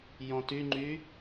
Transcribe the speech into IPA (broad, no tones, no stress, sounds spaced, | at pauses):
j ɔ̃ t y ŋ͡ǃ y